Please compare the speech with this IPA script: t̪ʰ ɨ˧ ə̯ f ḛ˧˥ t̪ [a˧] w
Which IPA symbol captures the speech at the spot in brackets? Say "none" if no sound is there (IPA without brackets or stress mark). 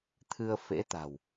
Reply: a̤˨˩